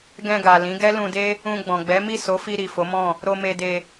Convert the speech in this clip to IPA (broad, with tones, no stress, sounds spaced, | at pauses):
ɡ ɛ̃˧ ɡ a˨ l ĩ˨˦ ɡ ɛ˦ l ũ˧ d e˦ | ũ˧ ɡ͡b ɔ̃˨ ɡ͡b ɛ˨˦ m i˦˨ s o˨˦ f i˧ ɾ i˨ f o˨˦ m ɔ̃˦˨ | ɾ o˧ m e˧ d e˧